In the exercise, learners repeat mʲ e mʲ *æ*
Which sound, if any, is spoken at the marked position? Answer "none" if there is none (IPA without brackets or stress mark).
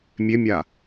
a